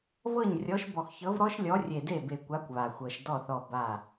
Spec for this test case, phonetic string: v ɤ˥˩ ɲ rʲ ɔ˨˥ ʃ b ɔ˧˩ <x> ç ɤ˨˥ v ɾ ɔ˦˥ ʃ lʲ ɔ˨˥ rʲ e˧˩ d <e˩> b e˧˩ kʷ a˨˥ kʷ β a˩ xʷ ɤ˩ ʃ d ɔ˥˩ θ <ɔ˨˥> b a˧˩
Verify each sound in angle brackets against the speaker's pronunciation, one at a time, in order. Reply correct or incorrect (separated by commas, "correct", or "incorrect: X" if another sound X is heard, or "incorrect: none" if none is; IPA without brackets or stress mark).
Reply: correct, incorrect: e˥˩, incorrect: ɔ˧˩